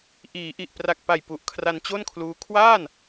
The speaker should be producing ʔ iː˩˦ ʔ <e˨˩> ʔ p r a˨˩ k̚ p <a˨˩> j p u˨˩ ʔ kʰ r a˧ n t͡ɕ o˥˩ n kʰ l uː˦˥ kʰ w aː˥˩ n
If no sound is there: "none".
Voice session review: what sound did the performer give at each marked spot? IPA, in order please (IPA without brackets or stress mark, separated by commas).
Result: i˨˩, a˨˩